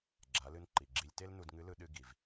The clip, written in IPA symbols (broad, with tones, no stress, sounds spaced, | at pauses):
ɡ͡ǁ a˩˧ l ɨ˧ n ǃ i˩ ɡ͡ǁ i˧ lʲ t e˥ l n u˧ d ŋ ɨ˧˥ l ɯ˧ ɗ ɨ˧ ɡ i˩ v